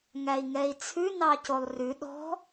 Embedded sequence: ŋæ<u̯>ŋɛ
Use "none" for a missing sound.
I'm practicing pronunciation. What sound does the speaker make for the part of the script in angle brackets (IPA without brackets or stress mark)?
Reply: i̯